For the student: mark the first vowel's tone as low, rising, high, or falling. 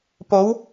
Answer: rising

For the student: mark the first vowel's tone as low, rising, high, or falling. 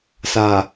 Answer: low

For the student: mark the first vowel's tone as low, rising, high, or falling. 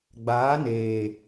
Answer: rising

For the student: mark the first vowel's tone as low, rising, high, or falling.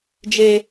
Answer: high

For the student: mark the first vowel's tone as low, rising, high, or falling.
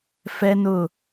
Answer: high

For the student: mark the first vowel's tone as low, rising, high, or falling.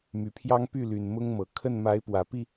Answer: low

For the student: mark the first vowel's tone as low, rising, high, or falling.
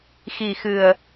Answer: low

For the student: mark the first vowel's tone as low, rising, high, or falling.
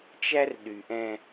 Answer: high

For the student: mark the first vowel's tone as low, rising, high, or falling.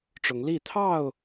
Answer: rising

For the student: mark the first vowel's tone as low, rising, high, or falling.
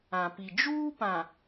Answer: low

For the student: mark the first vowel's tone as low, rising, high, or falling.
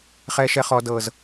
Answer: high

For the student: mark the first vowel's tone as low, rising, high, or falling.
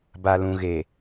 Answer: low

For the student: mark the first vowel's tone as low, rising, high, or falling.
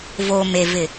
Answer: low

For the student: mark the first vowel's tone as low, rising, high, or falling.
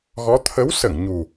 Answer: rising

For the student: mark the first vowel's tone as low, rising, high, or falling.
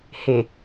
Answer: low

